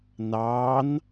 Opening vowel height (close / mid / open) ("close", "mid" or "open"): open